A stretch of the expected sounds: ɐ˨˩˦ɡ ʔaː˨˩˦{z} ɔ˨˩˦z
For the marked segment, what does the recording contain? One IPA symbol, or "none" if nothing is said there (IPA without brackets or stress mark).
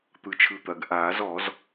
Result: z